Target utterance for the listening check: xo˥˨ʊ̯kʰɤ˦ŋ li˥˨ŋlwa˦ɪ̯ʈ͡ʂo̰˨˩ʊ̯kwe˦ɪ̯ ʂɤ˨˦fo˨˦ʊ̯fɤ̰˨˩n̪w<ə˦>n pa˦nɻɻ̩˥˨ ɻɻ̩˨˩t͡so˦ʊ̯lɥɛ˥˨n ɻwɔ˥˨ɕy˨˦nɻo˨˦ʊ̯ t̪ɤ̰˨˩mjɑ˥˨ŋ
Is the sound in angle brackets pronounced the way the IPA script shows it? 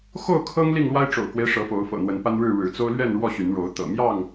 no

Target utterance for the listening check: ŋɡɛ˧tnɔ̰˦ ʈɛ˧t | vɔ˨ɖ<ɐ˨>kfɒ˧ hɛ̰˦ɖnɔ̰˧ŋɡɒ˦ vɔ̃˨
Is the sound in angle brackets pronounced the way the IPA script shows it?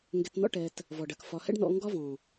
yes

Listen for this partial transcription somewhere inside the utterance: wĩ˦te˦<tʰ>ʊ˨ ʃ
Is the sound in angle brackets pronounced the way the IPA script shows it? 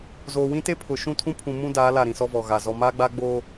no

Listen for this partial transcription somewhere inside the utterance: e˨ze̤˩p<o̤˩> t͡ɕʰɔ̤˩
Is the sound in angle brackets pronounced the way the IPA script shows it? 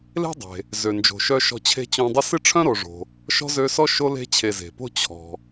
no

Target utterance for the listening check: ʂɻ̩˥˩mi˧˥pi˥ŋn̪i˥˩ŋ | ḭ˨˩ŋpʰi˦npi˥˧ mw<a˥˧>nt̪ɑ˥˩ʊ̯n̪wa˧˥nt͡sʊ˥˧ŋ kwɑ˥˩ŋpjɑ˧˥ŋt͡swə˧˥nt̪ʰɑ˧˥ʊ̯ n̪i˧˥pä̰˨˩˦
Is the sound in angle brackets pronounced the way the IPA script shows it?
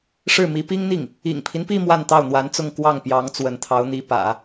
yes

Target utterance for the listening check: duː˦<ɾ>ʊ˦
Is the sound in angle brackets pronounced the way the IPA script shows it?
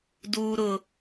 yes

